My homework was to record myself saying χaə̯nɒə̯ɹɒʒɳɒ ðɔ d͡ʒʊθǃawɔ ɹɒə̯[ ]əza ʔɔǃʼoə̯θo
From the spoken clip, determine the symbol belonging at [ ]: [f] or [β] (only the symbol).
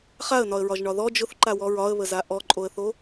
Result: β